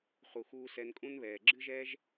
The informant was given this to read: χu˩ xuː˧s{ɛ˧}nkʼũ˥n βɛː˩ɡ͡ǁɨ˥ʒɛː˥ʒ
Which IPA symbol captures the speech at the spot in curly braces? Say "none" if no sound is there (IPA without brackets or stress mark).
ɛ˧